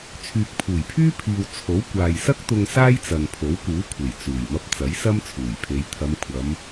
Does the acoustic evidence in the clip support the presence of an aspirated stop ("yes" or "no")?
yes